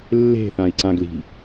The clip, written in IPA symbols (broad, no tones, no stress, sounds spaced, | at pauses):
lː e̤ θ ã i̯ ǀ ã ɡ l i̤